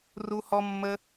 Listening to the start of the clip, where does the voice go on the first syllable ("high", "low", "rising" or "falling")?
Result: high